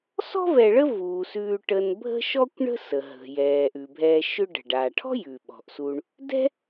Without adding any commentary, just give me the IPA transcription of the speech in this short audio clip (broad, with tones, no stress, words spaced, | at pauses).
sɔ̤˥vɛ˨ɭə˦ vuː˩ sʉː˨ʈə˨n bʱə̤˦ʃɔ˦kʷɳə̤˦ sə˩ɦə̤˩ jɛː˩ʔʉ˩bʱɛː˨ ʃʏ˦ɖə̤˩ ɖaː˩ʈʰɔ̤˥ jʉ˩ ɓɔ̤˩ʔsu˨ɳ | dɛ̤˦